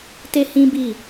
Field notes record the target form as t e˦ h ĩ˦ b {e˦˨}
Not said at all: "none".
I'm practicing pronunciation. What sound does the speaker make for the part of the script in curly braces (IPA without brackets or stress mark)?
i˦˨